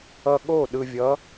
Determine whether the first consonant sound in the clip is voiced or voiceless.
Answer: voiced